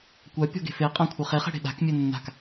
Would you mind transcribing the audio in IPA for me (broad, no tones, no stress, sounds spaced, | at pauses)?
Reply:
kʷ a pʲ ɔ̤ ɡ e̤ f e qʼ ã kʷʰ ə χ e χ e̤ ɽ e̤ ɗ a̤ k mʲ e nː a̤ k